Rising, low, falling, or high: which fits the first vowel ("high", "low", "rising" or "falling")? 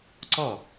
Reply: falling